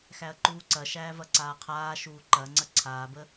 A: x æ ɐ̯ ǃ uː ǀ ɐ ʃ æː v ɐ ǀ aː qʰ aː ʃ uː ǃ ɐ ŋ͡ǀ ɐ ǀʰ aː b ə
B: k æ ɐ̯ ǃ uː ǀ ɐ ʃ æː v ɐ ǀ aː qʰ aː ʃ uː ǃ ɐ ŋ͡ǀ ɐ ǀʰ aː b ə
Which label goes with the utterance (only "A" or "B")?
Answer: A